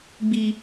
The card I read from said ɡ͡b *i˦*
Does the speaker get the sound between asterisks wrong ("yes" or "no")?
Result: no